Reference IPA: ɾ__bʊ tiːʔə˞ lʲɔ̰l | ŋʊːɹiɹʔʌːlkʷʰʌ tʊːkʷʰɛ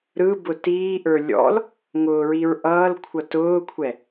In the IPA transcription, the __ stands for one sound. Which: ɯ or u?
ɯ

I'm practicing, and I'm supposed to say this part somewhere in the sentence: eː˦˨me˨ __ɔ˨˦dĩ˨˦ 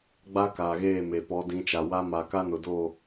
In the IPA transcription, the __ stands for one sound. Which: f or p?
p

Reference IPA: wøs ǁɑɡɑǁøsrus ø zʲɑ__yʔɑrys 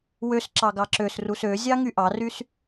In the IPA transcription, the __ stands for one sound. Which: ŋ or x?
ŋ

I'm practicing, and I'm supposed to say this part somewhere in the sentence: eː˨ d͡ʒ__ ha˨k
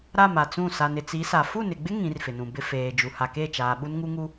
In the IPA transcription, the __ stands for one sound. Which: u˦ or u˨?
u˨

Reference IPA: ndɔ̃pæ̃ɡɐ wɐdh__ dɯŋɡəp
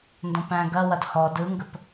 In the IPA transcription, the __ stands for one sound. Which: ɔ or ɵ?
ɔ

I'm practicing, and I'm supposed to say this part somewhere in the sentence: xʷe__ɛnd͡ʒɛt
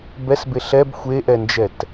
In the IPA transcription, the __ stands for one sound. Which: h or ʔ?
ʔ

